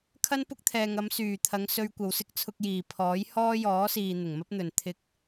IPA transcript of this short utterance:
kʰ ɐ˥ n p ʊ˥ k̚ t̪ʰ ɛː˨ ŋ ɐ˨˧ m s yː˨˩ t̪ʰ ɐ˨˧ ŋ s ɵ˧ ɥ kʷ ɐ˨ w s ɪ˥ k̚ t͡sʰ ʊ˧ k̚ j iː˨˩ pʰ ɔː˨˥ j h ɔː˥ j ɔː˨˥ s iː˨ n̪ ɪ˨˩ ŋ m ɐ˥ p̚ n̪ ɵ˨ n t̪ʰ ɪ˧ k̚

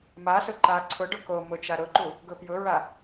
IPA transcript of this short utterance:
m a s ʊ ǃ a ǀʰ ʊ ɖ ʊ k o m ʊ t͡ʃ a ɾ ʊ ǃ u | ɡ ʊ p j ʊ ɹ a

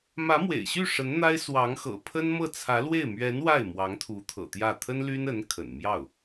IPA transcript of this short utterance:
m ä˧˥ m w ḛ˨˩ ɪ̯ ɕ y˥˩ ʂ ə˧˥ n n̪ a˥ ɪ̯ s w ɑ˧˥ ŋ x ɤ̰˨˩ pʰ ə˥ n m ɤ˥˩ t͡sʰ ä˧˥ l w e˥˩ ɪ̯ m ɥ ɛ˧˥ n w a˥˩ ɪ̯ m w ɑ˧˥ ŋ t̪ʰ u˧˥ t̪ʰ ɤ̰˨˩ t̪ j ä˥˩ t̪ʰ ə˥ n l y˥ n ə˧˥ n kʰ ə̰˨˩ n m j ɑ˥˩ ʊ̯

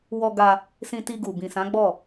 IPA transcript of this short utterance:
w ɔ˧ ɡ a˧ | s ĩ˧ t i˧ ɡ u˨ b ĩ˨ s ã˨˦ ɡ͡b ɔ˦˨

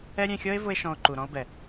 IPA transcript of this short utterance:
ɛ˦ ɾʲ ɛ̃˧ xʲ ɔ˦ e̯ v ʊ˧ e̯ ʃ ɔ̃˧ o̯ ǃ u˨ ɾ ɔ̃˦ o̯ b ɛ˨

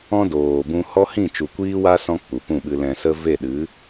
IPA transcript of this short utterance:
ɔ̃˦ d oː˨ b ũ˧ h ɔ˦ h ĩ˦˨ t͡ʃ u˨ kʷ iː˦ w a˦ s ɔ̃˧ k͡p u˨ p ũ˦˨ ɓ ɨ˧ l ɛ̃˨ s ə˧ v e˦˨ ɗ ɨ˨˦

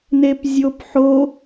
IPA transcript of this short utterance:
n e p zʲ o p ħ o

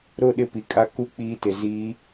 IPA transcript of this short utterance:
ɾ ʊ˦˨ ɗ ɪ˦ p i˨ kʼ a˦ k u˦ k͡p iː˦ t ɪ˨ z iː˨˦

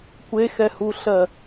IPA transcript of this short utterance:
kʷ e x ɛ h u ɬ ɜ

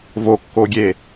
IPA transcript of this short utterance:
v o kː o ɡʲ e

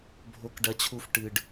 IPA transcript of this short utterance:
bʱ o˦ k ɖ ɐ˦ t͡ɕʰ u˦ f ʈ ɨ˨ ɖ

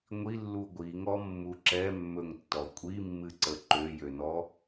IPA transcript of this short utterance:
ŋʷ i lː u ɡʷ i ŋ ɔ mː u ǁ ɛ mː ɵ ŋ tː ɔ kʷʼ i mː ɨ ǀ ə ǃ ø j ø n ɔ

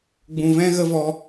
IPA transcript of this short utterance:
ɡ͡b ũ˨ v ɛ̃˦ ɣ ə˦ v ɔ˧

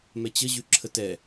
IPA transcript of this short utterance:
m ɛ t͡ɕ ə ʑ ʉ ǁʰ ə t ɛ

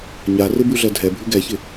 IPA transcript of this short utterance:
ɲ a r ɪ b ʉ ɮ ɜ dʱ ɛ bʱ ʉ ɡ ɛ ç ɪ

